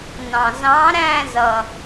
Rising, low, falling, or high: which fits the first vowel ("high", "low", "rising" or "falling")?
low